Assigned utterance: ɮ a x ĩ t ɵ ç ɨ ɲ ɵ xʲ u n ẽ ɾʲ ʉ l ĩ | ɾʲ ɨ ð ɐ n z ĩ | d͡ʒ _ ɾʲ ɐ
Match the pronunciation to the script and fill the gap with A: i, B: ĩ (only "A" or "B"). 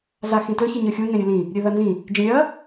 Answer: B